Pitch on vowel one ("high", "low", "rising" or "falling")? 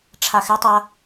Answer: high